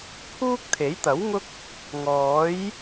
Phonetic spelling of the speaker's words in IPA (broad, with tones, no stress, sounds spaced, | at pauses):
pʰ uː˥ k̚ t̪ʰ e˨˥ j t̪ ɐ˨˥ w ŋ ʊ˥ k̚ | ŋ ɔː˨˥ j